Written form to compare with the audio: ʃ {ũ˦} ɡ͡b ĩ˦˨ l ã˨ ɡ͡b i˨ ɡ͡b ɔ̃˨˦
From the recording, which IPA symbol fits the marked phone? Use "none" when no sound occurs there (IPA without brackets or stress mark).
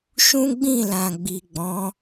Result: ũ˦